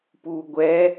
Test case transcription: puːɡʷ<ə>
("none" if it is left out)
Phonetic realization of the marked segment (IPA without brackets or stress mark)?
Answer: ɛ